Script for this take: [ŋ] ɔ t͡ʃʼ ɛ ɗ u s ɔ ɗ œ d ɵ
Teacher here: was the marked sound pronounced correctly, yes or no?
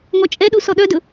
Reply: yes